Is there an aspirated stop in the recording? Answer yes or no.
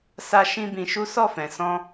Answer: no